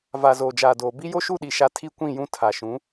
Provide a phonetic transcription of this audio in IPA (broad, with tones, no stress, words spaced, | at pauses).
va˨zoː˨d͡ʒaː˨doː˨ bi˦jo˦ʃu˦˨ɗi˨ ʃa˦ tʰi˦kʷĩ˦˨jũ˦ tʰa˨ʃũ˨˦